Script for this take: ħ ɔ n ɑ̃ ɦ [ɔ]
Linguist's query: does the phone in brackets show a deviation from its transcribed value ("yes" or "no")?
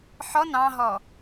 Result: no